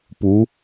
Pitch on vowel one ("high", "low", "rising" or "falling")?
rising